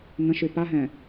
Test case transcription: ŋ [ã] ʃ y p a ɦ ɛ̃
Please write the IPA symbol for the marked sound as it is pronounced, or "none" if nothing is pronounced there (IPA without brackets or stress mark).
ə̃